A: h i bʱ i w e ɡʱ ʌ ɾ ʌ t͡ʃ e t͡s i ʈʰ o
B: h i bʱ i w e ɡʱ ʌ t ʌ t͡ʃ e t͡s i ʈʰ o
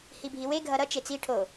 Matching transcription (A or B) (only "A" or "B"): A